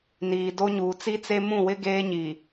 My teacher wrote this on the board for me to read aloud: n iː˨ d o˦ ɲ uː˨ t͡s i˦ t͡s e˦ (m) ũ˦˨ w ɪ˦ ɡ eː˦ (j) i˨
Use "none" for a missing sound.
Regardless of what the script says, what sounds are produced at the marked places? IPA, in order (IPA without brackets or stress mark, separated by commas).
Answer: m, ɲ